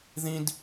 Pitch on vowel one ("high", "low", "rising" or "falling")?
high